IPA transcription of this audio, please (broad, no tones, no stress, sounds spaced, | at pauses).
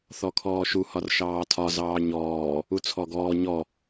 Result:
θ ɔ kʰ ɔː ʃ u h ɒ r ʃ ɑː tʰ ɒ z ɑː ɲ ɔː | u t͡sʰ ɔ ɡ ɔː ɲ ɔ